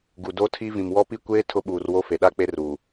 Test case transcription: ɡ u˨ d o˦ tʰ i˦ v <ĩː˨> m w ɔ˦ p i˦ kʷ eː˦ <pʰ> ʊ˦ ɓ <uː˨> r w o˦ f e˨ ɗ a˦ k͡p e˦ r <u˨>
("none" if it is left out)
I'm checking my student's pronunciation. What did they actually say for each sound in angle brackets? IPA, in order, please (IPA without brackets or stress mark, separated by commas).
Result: ĩ˨, tʰ, uː˨, uː˨